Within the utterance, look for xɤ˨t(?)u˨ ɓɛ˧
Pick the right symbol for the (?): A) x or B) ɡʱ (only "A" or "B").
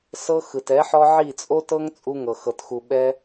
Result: A